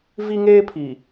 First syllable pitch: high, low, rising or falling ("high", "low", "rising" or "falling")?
high